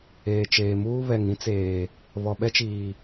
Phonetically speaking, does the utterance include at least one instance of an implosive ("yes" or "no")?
yes